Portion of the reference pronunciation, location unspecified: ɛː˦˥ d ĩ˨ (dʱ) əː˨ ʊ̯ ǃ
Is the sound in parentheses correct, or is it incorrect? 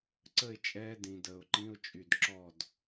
incorrect